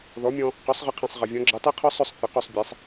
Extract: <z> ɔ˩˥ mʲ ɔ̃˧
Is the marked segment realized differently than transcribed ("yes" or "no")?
yes